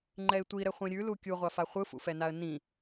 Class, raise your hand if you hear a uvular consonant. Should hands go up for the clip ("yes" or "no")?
yes